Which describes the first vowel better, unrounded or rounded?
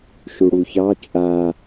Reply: rounded